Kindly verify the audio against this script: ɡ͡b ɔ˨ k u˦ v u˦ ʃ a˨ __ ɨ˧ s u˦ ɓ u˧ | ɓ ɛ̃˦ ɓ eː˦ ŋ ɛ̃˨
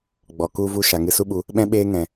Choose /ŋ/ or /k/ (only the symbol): ŋ